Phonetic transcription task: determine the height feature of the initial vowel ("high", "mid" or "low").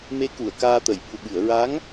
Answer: mid